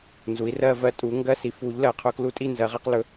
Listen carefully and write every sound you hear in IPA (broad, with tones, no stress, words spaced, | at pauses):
nzu˩˥i̯rɜ˥˧vɜ˧˥ tʼu˩˥ŋɡɜ˥˧si˩˥ fu˩˥ʎ lɜ˩˥qʰʊ˧˥ klu˧˥ tʼi˥˩ nzɜ˩˥ʁɛ˧˥q lɵ˩˥